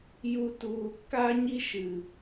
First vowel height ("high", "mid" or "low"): high